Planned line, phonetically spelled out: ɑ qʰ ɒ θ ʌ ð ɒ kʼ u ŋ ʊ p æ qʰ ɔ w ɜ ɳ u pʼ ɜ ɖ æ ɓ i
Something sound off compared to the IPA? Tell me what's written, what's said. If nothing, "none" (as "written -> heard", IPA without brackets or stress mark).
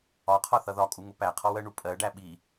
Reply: ɑ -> ɒ